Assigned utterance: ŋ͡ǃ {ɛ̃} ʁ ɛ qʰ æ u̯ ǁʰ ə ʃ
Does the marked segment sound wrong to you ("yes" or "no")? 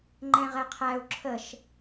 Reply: no